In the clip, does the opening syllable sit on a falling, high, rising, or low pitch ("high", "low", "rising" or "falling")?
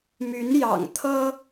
rising